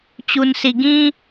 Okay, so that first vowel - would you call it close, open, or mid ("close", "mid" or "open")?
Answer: close